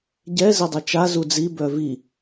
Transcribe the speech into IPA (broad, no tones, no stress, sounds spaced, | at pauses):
ɟ ɛ z ɪ dˤ i t͡ʃ a z u d͡z i b œ v i